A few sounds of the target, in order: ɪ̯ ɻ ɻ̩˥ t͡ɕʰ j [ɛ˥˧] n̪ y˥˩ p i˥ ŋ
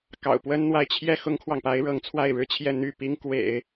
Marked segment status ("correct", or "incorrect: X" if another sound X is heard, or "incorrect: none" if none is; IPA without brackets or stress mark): correct